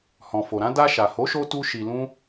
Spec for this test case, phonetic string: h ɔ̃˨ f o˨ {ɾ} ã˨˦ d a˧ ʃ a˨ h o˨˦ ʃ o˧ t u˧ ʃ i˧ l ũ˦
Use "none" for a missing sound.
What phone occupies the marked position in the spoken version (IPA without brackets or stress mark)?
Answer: ɾ